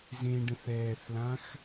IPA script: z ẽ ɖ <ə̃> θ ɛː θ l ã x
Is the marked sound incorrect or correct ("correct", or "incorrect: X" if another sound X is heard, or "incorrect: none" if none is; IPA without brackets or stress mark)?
correct